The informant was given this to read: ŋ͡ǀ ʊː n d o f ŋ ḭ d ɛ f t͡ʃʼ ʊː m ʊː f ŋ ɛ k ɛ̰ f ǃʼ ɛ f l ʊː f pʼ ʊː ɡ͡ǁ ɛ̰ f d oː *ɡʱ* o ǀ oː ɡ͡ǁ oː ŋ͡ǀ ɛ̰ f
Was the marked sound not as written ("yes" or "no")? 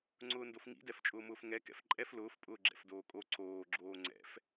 yes